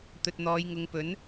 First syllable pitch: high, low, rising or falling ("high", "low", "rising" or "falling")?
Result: low